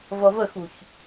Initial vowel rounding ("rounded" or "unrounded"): unrounded